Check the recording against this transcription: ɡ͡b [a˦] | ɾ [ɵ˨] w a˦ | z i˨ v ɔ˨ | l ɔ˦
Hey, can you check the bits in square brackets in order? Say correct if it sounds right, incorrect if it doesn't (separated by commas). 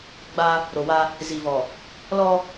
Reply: correct, incorrect